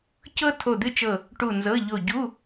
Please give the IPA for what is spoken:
cɤ˥ tʰo˦˨d̪ɨ˥t͡ʃɤ˦˨ | ʈu˦˨nzɤ˧˥˧ʎo˦˨ ɟu˧˥˧

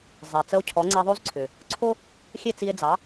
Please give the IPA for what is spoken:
zˤɛ˩t͡sə˧o̯ cʰɔ˩˥ŋ͡ǀɛ˧ðˤo˥zǀʰʏ˩ | ǀʰo˥ | xʲe˥˩t͡si˧e̯d͡zɑ˩˥

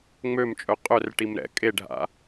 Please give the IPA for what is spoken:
ŋ͡mømt͡ʃʼœ qʼœrʈim ɾɛ̰ kʼeɖʱa̰

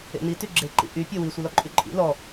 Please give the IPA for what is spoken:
ḛn̪i tyɡ͡ǁe ǃḭʔy pʲɔwi sʷɨlɔǃʼyǃʼḭ lɔ

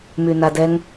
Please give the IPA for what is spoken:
mynadɛŋ

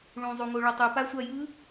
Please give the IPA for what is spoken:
ɭũzˤuŋo ɭʌtˤɯ pasʷajɯ

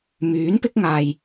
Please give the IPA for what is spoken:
myː˨˥n pɪ˥k̚ŋaː˧j

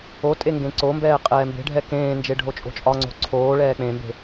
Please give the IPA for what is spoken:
otʼe ŋɡẽǀombɛː qʼɛːmbe̤ɖʱɛ kẽːnd͡ʒe ɖʱot͡ʃʼo̤t͡ʃʼɒŋ͡ǀo̤ ǀʰoː ɭɛːk͡pẽmbe̤

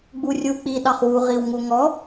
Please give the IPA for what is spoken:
ɡ͡burʲu k͡pi ɗɑχwu ʁiwŋuŋɔ

